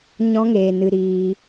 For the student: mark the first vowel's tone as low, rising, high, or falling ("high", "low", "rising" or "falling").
high